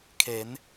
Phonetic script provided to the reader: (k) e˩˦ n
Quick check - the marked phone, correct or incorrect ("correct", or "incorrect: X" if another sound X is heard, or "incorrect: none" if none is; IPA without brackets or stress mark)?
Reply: incorrect: kʰ